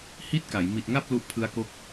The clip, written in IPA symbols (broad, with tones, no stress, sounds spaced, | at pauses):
h i˥˩ t̚ k a˩˦ j m i˨˩ t̚ ŋ a˥˩ p̚ l u˦˥ ʔ pʰ ɯ˦˥ a̯ k o˦˥ k̚